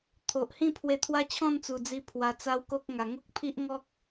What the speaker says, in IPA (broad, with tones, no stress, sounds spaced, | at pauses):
t̪ʰ o˨ ʔ h ĩ˥˧ pʰ w e˧ t̪ʰ w a˦ t͡ɕʰ ɔ̃˥˧ n t͡s u˨˩ d͡z i˧ pʰ w a˧ t͡s a˦ w k o˦ k̚ ŋ a˨˩ ŋ o˦ k̚ pʰ i˦ ʔ ŋ ɔ˦ k̚